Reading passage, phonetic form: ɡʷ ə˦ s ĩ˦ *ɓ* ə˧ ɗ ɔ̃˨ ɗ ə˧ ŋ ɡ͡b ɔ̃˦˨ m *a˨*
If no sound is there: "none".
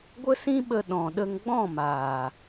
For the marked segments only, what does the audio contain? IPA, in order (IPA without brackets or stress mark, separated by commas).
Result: ɓ, aː˨